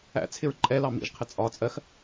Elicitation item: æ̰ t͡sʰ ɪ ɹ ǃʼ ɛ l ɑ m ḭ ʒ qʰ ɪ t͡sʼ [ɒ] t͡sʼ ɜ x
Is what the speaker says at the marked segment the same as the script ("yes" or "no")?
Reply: yes